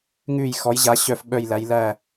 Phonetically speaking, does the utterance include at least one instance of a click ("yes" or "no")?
no